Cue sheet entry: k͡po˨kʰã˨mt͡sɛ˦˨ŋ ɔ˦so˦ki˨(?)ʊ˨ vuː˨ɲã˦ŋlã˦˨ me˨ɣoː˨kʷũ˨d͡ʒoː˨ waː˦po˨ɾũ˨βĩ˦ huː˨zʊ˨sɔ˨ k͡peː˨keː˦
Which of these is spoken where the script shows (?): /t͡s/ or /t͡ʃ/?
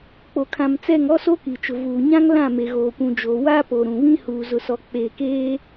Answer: t͡ʃ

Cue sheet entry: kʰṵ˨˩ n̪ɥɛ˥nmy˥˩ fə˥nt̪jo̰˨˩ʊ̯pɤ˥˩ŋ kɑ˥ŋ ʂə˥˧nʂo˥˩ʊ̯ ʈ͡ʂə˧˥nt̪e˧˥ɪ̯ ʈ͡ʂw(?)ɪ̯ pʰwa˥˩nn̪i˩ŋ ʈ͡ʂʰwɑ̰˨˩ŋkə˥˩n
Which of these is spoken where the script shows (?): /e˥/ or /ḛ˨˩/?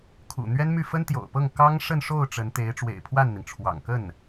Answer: ḛ˨˩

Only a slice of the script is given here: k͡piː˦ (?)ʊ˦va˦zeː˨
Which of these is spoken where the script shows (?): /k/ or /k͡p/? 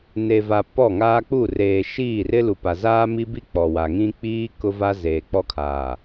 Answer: k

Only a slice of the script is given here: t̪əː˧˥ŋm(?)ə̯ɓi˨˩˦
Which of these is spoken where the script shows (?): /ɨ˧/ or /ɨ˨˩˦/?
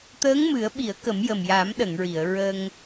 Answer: ɨ˨˩˦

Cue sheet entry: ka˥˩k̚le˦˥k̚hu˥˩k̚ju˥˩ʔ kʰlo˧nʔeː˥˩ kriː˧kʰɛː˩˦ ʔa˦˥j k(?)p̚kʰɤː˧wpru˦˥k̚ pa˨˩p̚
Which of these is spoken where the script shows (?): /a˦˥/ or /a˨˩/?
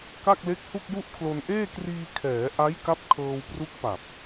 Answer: a˦˥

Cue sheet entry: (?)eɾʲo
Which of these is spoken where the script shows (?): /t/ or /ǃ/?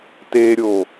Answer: t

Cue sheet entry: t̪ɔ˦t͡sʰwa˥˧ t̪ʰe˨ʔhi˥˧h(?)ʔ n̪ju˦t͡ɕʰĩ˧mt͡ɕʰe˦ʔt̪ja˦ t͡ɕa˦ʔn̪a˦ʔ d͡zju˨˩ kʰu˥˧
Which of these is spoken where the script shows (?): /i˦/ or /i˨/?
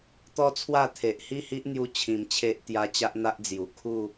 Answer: i˦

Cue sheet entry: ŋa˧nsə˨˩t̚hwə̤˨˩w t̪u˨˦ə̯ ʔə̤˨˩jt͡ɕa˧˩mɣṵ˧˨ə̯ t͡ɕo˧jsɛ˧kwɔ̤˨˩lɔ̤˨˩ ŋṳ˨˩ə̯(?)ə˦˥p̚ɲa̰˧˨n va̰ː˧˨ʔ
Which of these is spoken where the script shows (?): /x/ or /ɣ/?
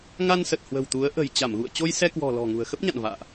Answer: x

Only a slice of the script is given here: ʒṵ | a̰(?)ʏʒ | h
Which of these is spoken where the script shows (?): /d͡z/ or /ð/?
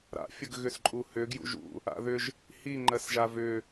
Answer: ð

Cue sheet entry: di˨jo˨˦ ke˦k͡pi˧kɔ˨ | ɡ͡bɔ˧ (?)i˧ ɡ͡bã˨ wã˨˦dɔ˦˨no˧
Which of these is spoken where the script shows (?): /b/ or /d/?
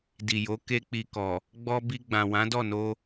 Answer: b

